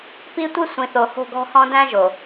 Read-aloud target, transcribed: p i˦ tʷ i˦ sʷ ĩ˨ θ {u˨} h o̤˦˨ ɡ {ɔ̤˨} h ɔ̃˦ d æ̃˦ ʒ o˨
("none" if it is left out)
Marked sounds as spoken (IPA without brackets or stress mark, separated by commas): o˨, ɔ̤˦